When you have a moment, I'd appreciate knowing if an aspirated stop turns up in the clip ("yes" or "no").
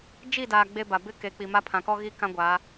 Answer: yes